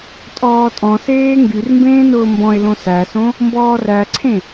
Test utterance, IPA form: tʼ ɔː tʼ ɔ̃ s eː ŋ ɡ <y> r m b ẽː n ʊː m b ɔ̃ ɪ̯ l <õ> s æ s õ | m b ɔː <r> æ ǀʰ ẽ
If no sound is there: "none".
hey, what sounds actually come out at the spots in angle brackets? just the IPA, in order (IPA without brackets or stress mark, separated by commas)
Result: y, õ, r